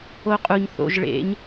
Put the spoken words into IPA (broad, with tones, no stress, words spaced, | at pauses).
o˦qʼu˧ɲ θo̰˧ʒɭḛ˨˦ɲ